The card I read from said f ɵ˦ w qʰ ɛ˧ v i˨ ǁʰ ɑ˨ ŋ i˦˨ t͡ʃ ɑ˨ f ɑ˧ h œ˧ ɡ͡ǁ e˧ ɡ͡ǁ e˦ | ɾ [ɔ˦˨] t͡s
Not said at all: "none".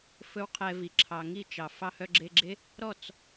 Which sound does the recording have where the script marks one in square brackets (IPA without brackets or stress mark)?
ɔ˦˨